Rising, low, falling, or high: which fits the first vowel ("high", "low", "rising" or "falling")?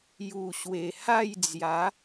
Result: low